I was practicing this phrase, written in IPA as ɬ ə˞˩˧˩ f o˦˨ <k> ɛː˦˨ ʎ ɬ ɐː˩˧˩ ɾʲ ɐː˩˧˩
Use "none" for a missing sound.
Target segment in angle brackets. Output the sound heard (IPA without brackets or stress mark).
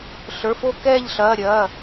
k